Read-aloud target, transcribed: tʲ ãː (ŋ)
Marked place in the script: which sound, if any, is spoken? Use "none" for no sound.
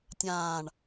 ɳ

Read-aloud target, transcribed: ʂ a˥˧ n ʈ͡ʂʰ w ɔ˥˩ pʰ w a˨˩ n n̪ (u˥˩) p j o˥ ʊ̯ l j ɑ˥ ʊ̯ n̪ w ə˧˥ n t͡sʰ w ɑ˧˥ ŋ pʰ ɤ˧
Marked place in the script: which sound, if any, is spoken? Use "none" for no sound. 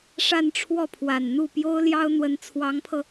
u˥˩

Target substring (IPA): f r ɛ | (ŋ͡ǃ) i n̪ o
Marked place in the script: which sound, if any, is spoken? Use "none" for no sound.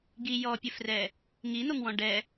ŋ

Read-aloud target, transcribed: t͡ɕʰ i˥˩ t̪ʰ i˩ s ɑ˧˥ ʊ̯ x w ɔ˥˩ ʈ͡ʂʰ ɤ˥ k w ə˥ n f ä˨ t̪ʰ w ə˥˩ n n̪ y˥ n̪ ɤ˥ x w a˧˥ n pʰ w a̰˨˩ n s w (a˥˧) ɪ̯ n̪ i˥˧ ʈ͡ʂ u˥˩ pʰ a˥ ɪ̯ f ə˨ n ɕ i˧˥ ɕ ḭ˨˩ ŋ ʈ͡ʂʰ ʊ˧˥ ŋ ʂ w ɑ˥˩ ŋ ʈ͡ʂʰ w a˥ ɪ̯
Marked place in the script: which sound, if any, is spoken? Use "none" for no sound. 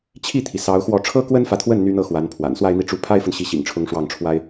a˥˧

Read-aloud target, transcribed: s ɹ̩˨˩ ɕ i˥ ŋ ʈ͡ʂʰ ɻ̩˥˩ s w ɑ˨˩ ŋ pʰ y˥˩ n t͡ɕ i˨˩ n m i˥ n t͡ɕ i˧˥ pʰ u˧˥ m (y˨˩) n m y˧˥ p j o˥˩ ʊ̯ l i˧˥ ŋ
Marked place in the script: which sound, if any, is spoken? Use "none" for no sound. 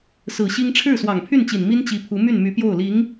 y˥˩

